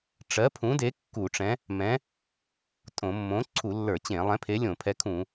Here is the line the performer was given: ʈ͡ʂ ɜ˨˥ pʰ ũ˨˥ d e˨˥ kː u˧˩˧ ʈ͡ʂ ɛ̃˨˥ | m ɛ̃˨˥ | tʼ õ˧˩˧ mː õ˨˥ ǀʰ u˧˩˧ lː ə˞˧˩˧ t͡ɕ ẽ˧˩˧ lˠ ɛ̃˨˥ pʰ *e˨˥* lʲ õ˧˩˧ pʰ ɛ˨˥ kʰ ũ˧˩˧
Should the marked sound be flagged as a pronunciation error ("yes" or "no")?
no